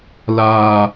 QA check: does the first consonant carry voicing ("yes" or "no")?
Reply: yes